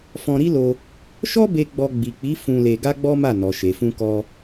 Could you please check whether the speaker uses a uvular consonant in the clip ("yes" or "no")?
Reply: no